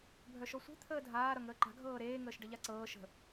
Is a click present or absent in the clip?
present